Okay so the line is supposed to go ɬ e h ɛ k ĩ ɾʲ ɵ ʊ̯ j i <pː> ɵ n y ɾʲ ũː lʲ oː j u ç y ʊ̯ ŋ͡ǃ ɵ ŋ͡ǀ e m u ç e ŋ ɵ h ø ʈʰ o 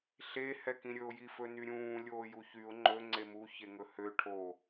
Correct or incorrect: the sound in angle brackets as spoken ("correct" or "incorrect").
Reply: incorrect